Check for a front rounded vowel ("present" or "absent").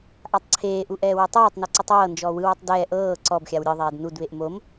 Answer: absent